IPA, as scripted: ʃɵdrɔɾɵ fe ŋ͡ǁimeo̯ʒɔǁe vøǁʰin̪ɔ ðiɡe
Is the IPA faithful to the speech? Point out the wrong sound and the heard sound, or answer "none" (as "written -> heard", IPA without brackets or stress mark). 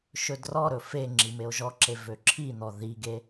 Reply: none